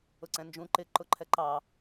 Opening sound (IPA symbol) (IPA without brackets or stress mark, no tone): ʊ